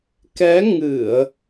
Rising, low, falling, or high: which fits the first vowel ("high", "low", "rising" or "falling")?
rising